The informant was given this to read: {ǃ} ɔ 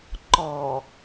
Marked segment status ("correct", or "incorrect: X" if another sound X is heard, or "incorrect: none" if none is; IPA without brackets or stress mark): correct